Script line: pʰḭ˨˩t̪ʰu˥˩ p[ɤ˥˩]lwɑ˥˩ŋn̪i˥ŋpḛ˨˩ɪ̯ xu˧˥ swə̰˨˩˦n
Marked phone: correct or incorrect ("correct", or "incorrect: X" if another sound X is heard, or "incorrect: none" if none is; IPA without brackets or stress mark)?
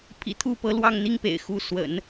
incorrect: ɤ˧˥